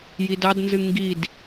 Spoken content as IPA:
jidɑdnzɨ ŋɡid

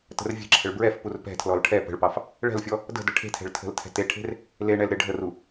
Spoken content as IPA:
tə̤rvʲe̤ǁʰəɭ bɹɛfpur pɛ̤tʰlɔl ʈʰɛ pə̤ɭpɑf | ɭɛ̤lfʲɔ | də̤ dəʈʰe̤tʰɛ̤ɭ tʰə̤ltʰɛ̤ teʈʰe̤r | leɳɛl ɾɪ ɖʱəru

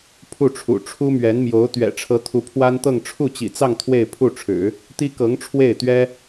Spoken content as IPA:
pʰu˥˩ʈ͡ʂʰṵ˨˩ ʈ͡ʂʰu˥mɥɛ˧˥nmjo˧˥ʊ̯ t̪ɥɛ̰˨˩ʈ͡ʂʰɤ˧˥t̪ʰu˧˥ pʰwa˥nt̪ɤ˥˧ŋ ʈ͡ʂʰu˥˩t͡ɕḭ˨˩t͡sɑ˥˧ŋ t̪ʰwe˥˧ɪ̯pʰu˥˩ʈ͡ʂʰɻ̩˨˩˦ | t̪i˥kɤ˧˥ŋ ʈ͡ʂʰwe˥˩ɪ̯t̪ɥɛ˥

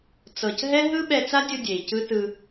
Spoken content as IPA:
t͡sɤ˨cɦɛ˦ɦɯ˦ ɓɛ˧t͡sa˦dʲɯ˧ dʲe˨i̯cɯ˦ tɯ˧

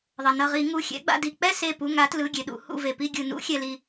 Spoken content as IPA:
ðˤʌ˩nʌ˧˩ʁi˧˩˧ ŋu˩˧˩xʲɛ̰˨˦ ɡ͡ba̰˩˧˩di˧˩ k͡pɛ˥˨se˧˩pu˩˧˩ ŋa˨˦tlɯ˩˧˩ɡʲe˩ɗṵ˧˩˧ hṵ˧˩ve˩ pi˧˩ɡʲɯ˩nṵ˧˩˧ xʲɛ˩li˩

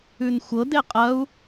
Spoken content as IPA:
ʉnxʷɤde qʼɐu̯

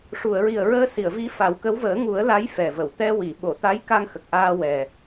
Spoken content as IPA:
ʂu˨˩˨ə̯ɹi˨˩ə̯ɹəː˧ si˨˩˨ə̯vi˧˥fa˨˩˦wkə˧˥w vəː˨˩˦ŋu˨˩˦ə̯la˧˥j fɛ˨˩və˨˩˨w t̪ɛ˧wi˨˩˨ ɓo˨˩˨t̪a˧˥jka˧ŋ xə˨˩k̚ʔaː˧ wɛ˨˩

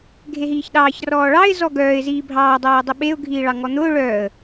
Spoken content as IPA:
ɡʱeɦiːçɗɑːç rɔːɭɑɪ̯ zɔɡœːɪ̯ ziːbʱɑː dˤeːʊ̯dˤiɓeʊ̯ ɡʱiːɭɑŋɔn̪ʊː ɭœːə̯

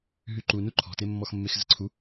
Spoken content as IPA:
ɦyǃunu ǃʰɔ̤temːɔxmːex zə̤ǀʰu

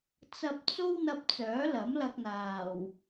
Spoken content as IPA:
t͡sɐ˧p̚t͡so˥w n̪ɐ˧p̚t͡sœː˨˥lɐ˨˥m lɐ˧k̚n̪aː˨˩w

